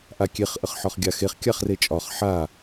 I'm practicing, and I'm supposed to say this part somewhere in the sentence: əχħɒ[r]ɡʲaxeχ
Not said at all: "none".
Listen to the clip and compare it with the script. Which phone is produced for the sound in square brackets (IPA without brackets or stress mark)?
χ